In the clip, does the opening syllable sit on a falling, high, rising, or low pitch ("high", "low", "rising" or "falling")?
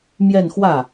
falling